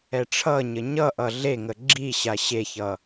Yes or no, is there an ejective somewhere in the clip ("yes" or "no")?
no